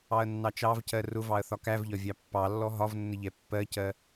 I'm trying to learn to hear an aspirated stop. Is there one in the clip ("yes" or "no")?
no